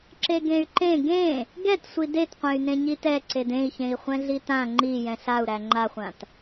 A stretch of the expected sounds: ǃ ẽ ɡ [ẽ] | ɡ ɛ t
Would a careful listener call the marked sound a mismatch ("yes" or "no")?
no